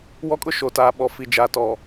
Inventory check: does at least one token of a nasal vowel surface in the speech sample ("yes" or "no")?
no